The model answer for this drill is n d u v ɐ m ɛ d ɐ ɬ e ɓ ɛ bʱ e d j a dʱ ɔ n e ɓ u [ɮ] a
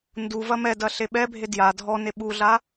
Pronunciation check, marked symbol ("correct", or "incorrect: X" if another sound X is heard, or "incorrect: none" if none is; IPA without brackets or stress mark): correct